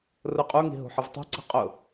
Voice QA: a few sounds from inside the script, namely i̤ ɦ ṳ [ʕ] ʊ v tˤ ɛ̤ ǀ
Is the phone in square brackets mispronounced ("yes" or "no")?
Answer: yes